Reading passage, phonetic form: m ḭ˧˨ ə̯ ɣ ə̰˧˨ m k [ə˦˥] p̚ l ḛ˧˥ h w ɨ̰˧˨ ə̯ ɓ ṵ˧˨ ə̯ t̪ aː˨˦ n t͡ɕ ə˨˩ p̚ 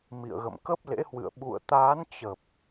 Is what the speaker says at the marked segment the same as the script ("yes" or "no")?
yes